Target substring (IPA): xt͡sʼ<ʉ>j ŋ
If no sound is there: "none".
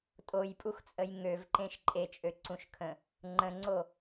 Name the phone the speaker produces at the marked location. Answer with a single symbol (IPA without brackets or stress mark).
ə